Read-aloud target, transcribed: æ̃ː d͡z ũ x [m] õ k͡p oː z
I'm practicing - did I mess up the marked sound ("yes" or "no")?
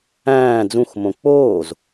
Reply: no